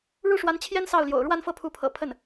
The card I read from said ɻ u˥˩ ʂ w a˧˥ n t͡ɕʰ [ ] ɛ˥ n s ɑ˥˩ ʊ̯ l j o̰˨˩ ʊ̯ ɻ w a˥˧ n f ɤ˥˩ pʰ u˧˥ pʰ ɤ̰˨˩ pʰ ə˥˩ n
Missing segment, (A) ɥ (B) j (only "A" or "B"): B